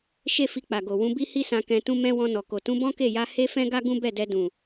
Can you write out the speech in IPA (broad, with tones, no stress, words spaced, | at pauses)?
ʃe˦fi˧ k͡pa˨ɡo˨ wũ˨˦bi˦hi˦sã˧ kɛ̃˧tũ˦ mɛ̃˦ wɔ̃˧ nɔ˨ko˨ tũ˨˦bɔ̃˦ke˦˨ja˧ he˦fɛ̃˦ɡa˦ ɡũ˦bɛ˦˨dɛ˧dũ˨